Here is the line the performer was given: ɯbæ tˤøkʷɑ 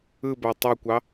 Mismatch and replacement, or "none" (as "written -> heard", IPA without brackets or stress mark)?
none